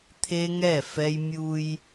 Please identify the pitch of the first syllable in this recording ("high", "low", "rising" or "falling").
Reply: high